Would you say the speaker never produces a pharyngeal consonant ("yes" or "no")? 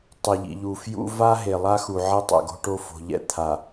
no